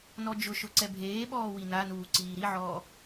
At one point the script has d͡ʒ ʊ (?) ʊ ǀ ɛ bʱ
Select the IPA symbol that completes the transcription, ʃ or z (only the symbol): ʃ